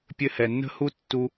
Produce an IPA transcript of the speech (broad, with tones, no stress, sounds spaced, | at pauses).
pʲ ɘ˧ h ɛ˩ nː ə̤˥ h u˥ tː u˧